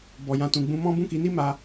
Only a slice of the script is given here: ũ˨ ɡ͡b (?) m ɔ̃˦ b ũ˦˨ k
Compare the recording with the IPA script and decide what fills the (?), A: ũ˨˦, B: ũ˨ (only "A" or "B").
A